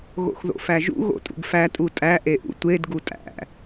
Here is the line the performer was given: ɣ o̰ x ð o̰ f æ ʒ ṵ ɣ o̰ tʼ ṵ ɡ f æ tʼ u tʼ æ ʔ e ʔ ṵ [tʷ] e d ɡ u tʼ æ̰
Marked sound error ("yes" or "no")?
no